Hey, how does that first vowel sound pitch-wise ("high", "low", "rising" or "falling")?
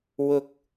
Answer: high